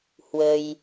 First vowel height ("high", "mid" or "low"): mid